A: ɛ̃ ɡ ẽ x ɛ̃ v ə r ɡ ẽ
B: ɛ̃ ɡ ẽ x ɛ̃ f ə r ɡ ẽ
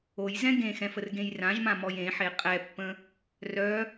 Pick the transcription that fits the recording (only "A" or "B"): B